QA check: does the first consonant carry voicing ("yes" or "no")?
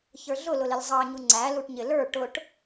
no